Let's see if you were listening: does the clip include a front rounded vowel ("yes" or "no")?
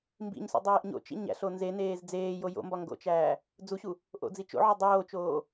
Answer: no